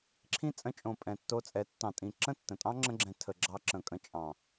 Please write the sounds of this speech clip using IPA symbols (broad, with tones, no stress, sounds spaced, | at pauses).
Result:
ǁʰ ĩ˦ t͡sʼ ə̃˧ t͡ʃʼ õ˨ pʼ ɛ̃˨ tː o˧ t͡sʼ ɛ˨˦ tː ɑ̃˨ tʼ ĩ˨ ǁ ə̃˦˨ tː ə̃˨ tʼ ɑ̃˦ ŋ͡ǁ ə̃˧ ɡ͡ǁ ɛ̃˨ tʰ ə˨ ɡ͡ǁ ɑ˧ ǁ ə̃˨ kʼ ə̃˧ t͡ʃʼ ɑ̃˨